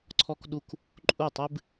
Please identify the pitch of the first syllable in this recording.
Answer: high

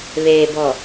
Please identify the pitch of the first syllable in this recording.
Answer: low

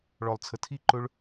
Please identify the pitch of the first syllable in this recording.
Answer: low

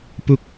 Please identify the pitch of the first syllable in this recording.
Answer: falling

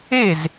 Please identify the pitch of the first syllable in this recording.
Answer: falling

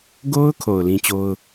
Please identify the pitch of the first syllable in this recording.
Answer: high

